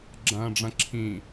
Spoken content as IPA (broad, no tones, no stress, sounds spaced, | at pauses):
ɡ͡ǁ ɐ̃ː ɖ͡ʐ ɐ̃ ǁʰ ĩ